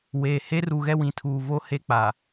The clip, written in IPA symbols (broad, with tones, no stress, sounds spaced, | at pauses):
w e˨ h e˦ r u˨ ɣ ɛ˦ w ĩ˨ tʰ uː˨ v o˦ h e˦ k͡p a˨